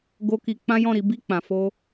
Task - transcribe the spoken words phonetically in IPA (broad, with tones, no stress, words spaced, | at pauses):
ɡo˦ki˧ k͡pã˦jɔ̃˦˨ɾi˨˦ bi˦˨k͡pã˨fo˧